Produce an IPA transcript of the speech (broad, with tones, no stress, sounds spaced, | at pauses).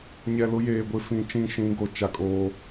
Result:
ɲ ɛ˨ l ʊ˦ j eː˨ ɡʷ ɪ˦˨ f ĩ˦˨ t͡ʃ ĩ˦˨ ʃ ĩ˨˦ ɡ o˨ t͡ʃ a˦ kʼ oː˦